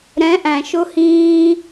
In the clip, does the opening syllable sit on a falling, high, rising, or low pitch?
rising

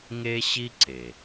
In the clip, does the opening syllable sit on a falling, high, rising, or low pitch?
high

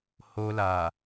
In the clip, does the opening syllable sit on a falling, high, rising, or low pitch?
high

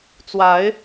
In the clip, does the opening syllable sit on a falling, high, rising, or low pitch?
rising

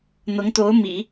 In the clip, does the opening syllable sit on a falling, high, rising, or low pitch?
rising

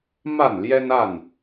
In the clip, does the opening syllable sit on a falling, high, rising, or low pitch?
falling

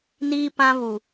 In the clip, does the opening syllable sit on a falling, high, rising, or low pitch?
high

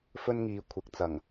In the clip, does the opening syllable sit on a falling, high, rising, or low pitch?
high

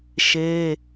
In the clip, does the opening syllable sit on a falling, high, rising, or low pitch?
high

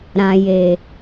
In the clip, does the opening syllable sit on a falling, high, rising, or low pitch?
low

